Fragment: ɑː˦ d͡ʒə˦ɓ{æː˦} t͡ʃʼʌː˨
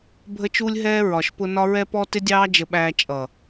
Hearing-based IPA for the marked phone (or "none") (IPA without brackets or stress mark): æː˦